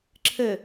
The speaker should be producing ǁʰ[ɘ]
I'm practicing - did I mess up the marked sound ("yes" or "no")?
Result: no